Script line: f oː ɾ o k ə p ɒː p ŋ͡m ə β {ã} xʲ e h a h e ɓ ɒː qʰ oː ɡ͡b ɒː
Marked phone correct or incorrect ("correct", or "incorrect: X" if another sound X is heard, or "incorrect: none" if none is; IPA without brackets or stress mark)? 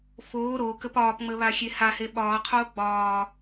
incorrect: a